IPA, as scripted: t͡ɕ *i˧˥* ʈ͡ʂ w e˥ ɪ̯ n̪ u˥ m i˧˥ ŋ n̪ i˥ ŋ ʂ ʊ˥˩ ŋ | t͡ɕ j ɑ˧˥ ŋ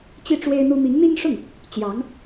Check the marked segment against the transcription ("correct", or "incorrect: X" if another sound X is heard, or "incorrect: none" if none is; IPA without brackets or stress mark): incorrect: i˥˩